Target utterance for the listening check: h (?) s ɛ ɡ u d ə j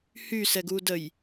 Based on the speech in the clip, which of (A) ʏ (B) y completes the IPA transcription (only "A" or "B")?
B